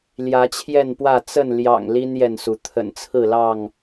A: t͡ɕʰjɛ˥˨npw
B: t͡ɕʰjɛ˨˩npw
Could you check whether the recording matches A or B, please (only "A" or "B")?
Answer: A